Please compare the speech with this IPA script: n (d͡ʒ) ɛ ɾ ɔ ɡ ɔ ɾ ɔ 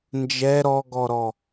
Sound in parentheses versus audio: correct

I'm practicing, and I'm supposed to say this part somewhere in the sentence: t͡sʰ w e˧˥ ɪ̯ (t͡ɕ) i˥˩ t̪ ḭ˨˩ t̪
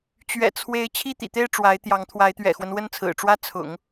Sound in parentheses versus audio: incorrect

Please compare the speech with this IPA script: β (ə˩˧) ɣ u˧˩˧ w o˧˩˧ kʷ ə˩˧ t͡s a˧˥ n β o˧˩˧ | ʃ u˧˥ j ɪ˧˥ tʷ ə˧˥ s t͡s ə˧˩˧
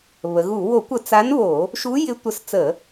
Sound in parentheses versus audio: correct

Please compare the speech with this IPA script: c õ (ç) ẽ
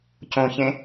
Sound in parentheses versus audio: correct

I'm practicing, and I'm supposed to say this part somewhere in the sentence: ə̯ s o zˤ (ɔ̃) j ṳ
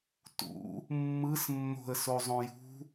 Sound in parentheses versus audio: incorrect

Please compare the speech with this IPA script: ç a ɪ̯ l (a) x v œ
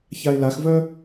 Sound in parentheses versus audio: correct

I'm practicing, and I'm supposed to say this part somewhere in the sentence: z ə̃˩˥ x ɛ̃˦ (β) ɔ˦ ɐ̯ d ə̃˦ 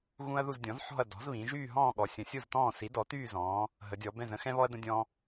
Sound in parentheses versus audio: correct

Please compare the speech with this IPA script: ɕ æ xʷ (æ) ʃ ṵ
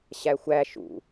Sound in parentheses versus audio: correct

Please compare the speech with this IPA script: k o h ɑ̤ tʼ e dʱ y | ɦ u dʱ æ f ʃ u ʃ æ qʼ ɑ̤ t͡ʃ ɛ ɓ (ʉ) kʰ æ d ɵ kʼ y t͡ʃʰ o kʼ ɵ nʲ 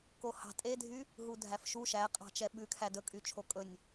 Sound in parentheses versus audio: correct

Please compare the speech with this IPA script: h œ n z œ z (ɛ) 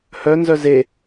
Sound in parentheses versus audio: incorrect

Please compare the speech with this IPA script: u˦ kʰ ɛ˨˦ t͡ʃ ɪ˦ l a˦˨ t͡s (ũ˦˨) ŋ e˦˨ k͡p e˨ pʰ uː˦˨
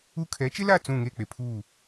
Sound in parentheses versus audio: correct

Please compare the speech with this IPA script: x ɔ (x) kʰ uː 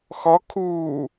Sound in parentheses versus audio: incorrect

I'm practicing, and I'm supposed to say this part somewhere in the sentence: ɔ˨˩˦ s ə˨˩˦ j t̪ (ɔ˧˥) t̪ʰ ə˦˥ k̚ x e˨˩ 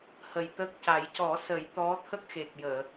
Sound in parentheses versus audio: correct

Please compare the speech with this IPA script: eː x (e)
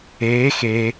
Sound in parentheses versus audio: correct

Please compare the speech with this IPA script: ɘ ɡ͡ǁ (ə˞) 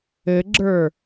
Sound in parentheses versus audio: correct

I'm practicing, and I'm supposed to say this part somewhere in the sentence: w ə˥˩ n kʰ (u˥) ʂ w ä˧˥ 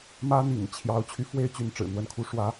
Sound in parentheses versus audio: correct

